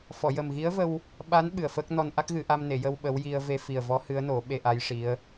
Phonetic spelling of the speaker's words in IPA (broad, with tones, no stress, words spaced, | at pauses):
fɔ˨˩˨jə˨˩mɣi˧˥ə̯və˧w | ɓa˧˥n ɓɨ˨˩ə̯fəː˦˥k̚ nɔ˧nʔa˦˥k̚ɣɨ˨˩˦ʔa˧m ne˨˩˨jə˧w ɓə˧˥wji˧ə̯ ve˧fi˨˩ə̯vɔ˧˥ hɨ˧˥ə̯no˨˩˦ ɓe˧ʔa˧˥jʂi˧˥ə̯